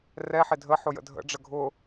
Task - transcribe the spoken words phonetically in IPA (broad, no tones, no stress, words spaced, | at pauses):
rɛħɪ dʱəħʊ jə̰dʱə̰ɖ͡ʐə ɡʱʊ